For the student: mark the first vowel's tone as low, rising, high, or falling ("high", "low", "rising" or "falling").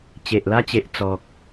low